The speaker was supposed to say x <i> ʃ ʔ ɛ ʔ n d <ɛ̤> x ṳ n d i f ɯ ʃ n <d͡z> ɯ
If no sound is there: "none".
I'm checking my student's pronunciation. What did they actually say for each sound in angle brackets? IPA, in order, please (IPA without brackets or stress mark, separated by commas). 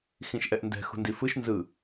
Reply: ĩ, ɛ̤, z